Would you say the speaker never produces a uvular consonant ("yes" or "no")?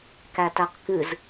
no